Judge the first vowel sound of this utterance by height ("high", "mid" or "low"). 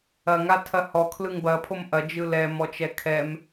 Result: low